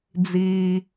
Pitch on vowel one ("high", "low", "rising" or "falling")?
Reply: low